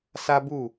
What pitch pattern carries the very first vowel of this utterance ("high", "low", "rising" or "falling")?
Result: high